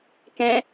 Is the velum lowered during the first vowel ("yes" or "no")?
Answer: yes